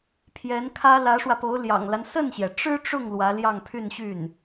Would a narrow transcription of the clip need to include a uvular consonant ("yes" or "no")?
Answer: no